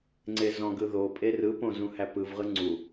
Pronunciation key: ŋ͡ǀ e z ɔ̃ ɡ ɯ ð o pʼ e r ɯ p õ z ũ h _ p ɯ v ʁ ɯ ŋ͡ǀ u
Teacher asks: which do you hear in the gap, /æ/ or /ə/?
æ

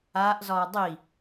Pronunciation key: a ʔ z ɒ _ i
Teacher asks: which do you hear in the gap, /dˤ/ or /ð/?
dˤ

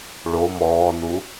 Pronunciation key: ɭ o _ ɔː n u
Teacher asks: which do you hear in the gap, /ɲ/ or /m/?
m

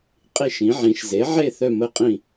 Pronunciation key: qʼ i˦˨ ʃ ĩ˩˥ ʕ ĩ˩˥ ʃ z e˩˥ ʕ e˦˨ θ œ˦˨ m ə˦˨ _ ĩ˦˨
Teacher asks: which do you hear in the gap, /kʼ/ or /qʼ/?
qʼ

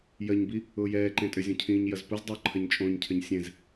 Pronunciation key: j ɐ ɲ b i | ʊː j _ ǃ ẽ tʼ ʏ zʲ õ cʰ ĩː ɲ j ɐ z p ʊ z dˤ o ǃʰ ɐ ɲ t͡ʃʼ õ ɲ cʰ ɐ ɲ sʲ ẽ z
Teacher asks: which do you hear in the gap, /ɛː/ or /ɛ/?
ɛː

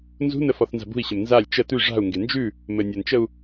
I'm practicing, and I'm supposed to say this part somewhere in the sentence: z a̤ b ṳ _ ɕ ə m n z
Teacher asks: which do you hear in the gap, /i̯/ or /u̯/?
i̯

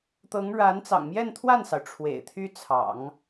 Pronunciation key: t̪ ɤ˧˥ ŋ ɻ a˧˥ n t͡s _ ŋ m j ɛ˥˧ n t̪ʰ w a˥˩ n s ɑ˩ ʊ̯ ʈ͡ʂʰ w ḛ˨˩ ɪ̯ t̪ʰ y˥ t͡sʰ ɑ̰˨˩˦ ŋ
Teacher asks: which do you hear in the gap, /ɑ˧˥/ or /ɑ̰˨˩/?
ɑ̰˨˩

